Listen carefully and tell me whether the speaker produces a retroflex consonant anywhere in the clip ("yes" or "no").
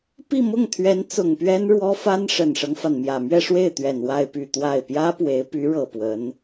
yes